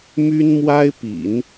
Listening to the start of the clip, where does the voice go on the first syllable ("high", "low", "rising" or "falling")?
high